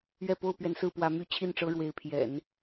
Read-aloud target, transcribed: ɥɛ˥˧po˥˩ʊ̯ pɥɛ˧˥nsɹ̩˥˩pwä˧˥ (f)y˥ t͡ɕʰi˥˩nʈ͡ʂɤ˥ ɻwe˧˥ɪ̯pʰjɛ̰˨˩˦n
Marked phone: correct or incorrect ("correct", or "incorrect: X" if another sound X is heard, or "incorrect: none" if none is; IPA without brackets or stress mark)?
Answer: incorrect: m